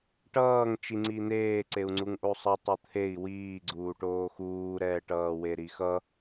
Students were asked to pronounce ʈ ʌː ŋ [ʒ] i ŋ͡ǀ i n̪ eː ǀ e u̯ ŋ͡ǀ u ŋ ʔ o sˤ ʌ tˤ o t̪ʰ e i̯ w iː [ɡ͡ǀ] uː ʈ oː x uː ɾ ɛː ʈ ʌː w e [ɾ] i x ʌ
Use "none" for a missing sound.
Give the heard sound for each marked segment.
t͡ʃ, ɡ͡ǀ, ɾ

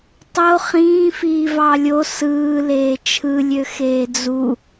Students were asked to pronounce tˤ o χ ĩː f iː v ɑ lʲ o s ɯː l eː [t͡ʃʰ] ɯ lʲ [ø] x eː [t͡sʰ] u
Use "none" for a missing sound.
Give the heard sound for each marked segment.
t͡ʃʰ, ø, d͡z

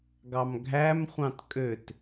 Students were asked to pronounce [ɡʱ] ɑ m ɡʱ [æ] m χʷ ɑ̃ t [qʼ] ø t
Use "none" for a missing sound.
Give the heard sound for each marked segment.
ɡ, æ, kʼ

